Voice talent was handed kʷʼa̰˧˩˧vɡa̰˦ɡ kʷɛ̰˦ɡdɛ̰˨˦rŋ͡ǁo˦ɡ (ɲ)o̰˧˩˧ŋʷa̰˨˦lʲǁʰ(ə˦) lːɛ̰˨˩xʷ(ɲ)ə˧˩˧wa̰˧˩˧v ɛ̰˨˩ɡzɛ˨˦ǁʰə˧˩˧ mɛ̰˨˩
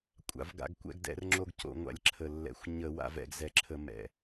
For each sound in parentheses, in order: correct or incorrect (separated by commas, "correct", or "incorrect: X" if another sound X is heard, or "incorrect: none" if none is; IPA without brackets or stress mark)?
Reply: incorrect: c, incorrect: ə˨˩, correct